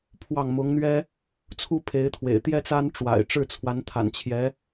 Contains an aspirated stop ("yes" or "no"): yes